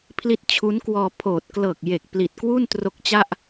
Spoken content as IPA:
pʰ l i˦˥ t̚ t͡ɕʰ u˦˥ n k w ɔː˧ pʰ oː˨˩ t̚ k l ɤː˨˩ k̚ j e˨˩ k̚ p l i˨˩ t̚ k w u˥˩ n t r o˦˥ k̚ t͡ɕ a˥˩ ʔ

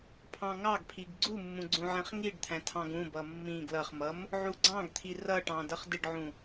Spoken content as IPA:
pʰ ɑ̃ ŋ ɑ ɡ pʰ i ɡ ɡ͡ǀ u mː ũ ɡ͡ǀ ũ ʕ ɛ̃ χ ŋ i ɖ t̪ʰ æ̃ tʰ ɑ̃ ɡ ũ b ʌ mː ĩ ɡ l ʌ χ m ʌ m | ʕ u ɡ͡ǀ ɑ̃ ɡ t̪ʰ i r ʌ ʈ ɑ̃ d ʌ χ d ɪ ɖ ʕ ũ

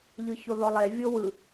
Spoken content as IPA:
ʎ ɯ ç o ð ɔ lˠ e vʲ o w ɯ

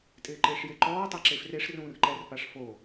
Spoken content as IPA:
tʼ ɪː ǃ ɪː ʂ j e ǃ ɔː tˤ a ǁ e f r e ʂ r ũː r ǃ ɛ r p a ʂ f o

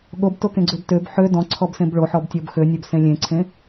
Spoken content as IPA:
ɠ o b t o k ẽ ɡ͡ǀ ø b t ø b ħ ø d ɔ̃ ǀʰ ɔ b s ẽ b ɭ o ħ ɔ b tʲ ɔ b x ø nʲ ø b s ẽ lʲ ẽ ǀʰ ẽ

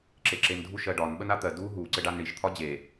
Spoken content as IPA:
ǁ e ǁ e n dʱ u ʃ ɜ ɖ ɒ n ɓ ə n a t̪ ɜ d u ɦ u ǀ ɘ ɖ a n ɳ i ʃ t̪ʰ ɒ d͡ʑ e

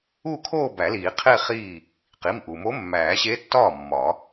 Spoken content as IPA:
u˥˧ kʰ oː˥˧ b æ˨˩˦ l iː˨˩˦ qʰ e˥˧ χ iː˥˩ | q i˩˧˩ m ʔ u˩ m o˧˥ mː æː˨˩˦ ɕ e˧˥ tː ɒː˥˩ mː ɒ˨˩˦

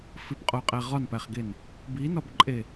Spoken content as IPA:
f i p qʼ o qʼ æ ʁ ɒ n p æ χ ɡ e n | b i n ɒ b ǃʼ e

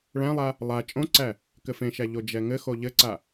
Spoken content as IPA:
ɭ æ̃ lˠ a | lˠ a t͡ʃʼ õ ǀ æ | k ɘ f ẽ ʃ æ ʎ o d͡ʒ ɛ ŋ ɘ x o ʎ ɘ ǀ a

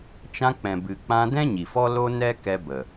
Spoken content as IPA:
t͡ʃ ã˧ k͡p ɛ̃˨ b ɨ˨ k͡p ã˧ d ɛ̃˦ ɲ i˨ f ɔ˦ l o˦ n ɛ˦ k ɛ˧ b ə˨

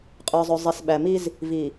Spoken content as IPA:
qʼ ə˞˨ zˤ ɵ˨ zˤ i˨ s ɓ æ˨ m i˦ z | v i˨

